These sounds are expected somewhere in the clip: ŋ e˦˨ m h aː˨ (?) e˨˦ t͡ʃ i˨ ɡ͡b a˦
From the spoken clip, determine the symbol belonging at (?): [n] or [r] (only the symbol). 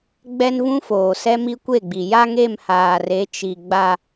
r